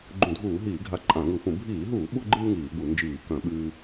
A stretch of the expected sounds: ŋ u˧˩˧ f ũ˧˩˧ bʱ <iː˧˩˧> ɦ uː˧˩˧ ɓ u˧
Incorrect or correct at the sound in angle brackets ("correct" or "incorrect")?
correct